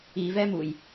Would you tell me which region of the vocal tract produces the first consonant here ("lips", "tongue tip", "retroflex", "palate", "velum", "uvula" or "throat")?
lips